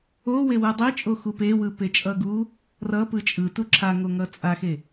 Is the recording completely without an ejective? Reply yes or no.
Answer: no